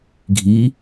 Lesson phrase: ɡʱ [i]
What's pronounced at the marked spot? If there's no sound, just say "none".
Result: i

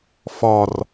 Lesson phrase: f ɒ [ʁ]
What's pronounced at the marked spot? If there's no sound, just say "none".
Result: r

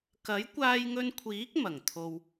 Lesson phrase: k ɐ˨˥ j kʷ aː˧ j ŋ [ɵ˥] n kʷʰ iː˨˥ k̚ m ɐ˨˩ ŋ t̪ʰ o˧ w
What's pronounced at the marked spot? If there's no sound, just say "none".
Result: ɵ˧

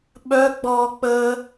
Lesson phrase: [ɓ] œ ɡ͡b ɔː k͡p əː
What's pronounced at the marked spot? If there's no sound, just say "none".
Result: ɓ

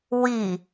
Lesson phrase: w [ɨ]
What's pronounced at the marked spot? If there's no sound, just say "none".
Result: i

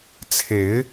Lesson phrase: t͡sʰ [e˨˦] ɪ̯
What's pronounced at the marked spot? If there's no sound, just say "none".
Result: e˨˦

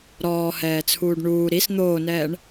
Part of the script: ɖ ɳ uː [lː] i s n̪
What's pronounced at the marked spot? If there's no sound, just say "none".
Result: ɾ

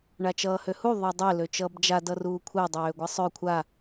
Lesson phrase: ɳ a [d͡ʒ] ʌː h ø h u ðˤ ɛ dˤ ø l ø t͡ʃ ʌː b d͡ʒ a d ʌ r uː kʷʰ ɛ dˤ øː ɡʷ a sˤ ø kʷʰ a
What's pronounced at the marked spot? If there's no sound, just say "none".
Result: t͡ʃ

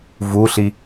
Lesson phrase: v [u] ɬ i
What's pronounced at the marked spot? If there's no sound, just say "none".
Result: u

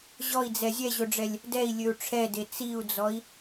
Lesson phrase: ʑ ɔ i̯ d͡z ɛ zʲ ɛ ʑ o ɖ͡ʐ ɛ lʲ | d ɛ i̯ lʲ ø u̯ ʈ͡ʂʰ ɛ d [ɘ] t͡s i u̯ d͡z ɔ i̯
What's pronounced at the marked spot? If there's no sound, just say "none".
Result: e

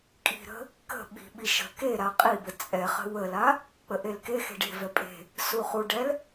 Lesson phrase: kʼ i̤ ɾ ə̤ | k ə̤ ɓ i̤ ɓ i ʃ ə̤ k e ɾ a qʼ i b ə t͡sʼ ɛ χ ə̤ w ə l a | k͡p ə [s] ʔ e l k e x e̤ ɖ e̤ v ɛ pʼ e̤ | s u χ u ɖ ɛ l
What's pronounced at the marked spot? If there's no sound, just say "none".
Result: none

